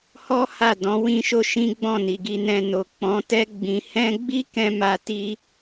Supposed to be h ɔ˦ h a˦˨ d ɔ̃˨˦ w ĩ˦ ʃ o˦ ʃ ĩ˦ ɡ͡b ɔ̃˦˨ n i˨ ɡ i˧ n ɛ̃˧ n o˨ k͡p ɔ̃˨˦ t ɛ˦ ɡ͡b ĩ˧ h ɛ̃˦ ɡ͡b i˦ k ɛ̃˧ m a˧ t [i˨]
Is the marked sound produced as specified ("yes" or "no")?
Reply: no